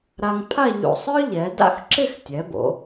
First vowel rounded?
no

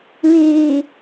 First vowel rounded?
no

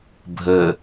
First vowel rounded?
no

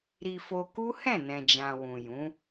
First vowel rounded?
no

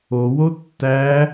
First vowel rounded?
yes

